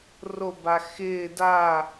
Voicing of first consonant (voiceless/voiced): voiced